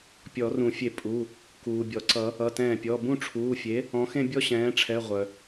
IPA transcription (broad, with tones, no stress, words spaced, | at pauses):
pʲɔ˨˩˦rũ˨˩˦fʲe˧˩ pʼu˩˧˩ | kuː˩bʲɔ˩ǀʌ˨˩˦ | ʌ˩˧˩tɛ̃ː˧˩pʲɔ˩˧˩ bũ˥˧ʈ͡ʂʰuː˩˧˩fʲe˩˥ | ɔ̃˩˥xẽ˥˧bʲɔ˥˧ ɕɛ̃ː˩˥ʈ͡ʂʰɛ˩˧˩ ʁʷœ˩